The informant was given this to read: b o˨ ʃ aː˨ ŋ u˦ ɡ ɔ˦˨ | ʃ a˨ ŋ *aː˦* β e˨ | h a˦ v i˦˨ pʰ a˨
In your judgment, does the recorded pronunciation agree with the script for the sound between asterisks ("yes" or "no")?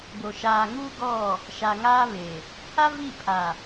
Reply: yes